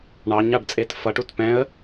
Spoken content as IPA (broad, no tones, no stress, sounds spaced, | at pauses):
ɳ ɑ ɲ ɑ ɖ t͡sʼ e t f ʌ ʈ u t p ɛ̃ ə̯